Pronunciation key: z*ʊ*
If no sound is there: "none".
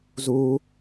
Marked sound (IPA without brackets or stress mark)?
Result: u